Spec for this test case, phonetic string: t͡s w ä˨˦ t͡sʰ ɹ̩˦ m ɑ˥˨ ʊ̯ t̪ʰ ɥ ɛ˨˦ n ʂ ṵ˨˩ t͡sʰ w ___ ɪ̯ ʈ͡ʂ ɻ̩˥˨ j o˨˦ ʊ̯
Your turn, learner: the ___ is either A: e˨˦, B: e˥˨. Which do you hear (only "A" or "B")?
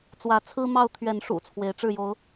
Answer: A